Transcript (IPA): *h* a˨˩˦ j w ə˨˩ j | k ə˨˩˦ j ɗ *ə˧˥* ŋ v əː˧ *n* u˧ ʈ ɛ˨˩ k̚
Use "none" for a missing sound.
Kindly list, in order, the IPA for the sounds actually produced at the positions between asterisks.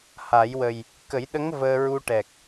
h, ə˧˥, ɹ

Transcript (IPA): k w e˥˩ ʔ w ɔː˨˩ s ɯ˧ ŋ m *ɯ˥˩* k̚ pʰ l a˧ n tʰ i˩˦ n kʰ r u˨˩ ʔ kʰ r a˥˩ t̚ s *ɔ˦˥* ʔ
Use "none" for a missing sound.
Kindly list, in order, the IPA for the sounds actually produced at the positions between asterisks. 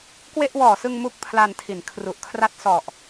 u˥˩, ɔ˨˩

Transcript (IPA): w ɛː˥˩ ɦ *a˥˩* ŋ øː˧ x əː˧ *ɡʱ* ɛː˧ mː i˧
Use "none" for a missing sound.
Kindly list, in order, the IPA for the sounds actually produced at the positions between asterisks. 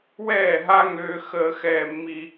a˥, x

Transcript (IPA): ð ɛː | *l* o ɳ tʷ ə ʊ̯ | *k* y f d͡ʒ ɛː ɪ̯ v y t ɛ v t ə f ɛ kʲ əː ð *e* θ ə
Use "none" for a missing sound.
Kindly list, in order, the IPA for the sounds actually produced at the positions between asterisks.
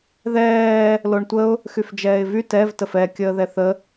l, x, ɛ

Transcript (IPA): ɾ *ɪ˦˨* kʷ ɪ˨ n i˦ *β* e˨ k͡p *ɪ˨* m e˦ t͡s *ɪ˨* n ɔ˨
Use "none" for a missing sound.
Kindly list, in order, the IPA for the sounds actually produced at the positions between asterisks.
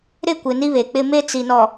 ɪ˦˨, β, ɪ˦, i˨

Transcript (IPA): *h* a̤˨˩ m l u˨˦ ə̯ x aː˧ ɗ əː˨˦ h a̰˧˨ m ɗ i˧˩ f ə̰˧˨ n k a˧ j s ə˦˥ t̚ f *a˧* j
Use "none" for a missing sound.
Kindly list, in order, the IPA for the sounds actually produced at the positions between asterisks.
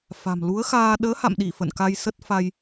f, a˧

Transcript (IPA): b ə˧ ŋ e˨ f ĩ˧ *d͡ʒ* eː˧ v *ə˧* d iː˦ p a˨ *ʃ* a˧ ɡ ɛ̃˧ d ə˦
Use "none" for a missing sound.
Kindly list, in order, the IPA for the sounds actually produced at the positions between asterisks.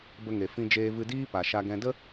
d͡ʒ, ɨ˧, ʃ

